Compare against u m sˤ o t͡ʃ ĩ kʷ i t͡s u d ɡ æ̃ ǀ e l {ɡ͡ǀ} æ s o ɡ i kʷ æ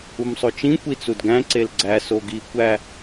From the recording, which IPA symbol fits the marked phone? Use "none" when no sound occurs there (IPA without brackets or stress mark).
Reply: ɡ͡ǀ